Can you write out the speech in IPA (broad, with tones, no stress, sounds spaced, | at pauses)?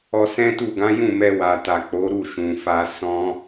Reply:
ɔ˧ s ɛ̃˦ t u˦˨ ɡ ã˨˦ j ũ˦˨ m ɛ˧ w a˨ t a˨ k͡p o˨˦ ɾ u˦˨ ʃ ũ˨ f a˧ s ɔ̃˦